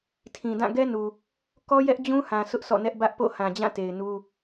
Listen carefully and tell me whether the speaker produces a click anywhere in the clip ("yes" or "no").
no